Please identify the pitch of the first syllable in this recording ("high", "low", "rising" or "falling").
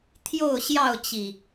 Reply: falling